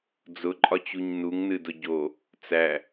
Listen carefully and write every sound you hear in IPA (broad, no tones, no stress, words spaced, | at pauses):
d͡zʊǃʼɒt͡ɕuɲ nuŋnɨdʊ ɟo | t͡sæ